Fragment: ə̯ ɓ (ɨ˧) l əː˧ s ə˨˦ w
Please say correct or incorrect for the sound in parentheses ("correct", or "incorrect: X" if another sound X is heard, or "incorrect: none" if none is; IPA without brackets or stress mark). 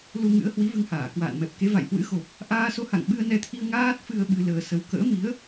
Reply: correct